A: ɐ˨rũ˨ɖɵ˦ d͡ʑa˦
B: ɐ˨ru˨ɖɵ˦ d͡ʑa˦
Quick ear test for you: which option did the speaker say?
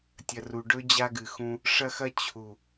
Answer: B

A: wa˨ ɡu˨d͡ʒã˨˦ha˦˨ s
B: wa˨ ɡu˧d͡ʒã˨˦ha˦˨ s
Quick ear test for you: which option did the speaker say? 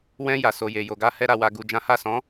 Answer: A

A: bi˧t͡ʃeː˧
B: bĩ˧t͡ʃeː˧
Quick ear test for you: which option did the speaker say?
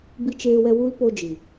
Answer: A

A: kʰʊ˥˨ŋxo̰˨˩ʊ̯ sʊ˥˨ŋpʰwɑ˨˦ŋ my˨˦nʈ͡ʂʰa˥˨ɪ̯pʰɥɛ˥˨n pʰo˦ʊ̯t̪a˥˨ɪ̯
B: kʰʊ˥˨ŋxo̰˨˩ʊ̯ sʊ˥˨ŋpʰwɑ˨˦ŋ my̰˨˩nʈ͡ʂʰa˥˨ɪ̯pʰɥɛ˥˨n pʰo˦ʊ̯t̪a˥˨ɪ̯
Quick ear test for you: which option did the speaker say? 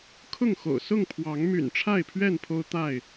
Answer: B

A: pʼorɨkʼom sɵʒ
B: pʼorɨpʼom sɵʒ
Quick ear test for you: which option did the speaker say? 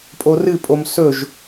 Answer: B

